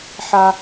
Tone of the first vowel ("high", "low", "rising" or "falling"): high